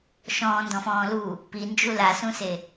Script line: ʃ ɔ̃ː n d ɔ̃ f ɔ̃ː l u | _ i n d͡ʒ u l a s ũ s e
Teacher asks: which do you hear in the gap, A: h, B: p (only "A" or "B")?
B